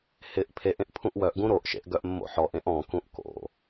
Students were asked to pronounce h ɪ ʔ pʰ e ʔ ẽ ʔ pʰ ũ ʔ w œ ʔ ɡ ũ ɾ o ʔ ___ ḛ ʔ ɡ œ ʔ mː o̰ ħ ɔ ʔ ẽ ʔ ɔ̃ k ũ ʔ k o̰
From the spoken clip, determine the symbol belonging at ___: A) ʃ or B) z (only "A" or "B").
A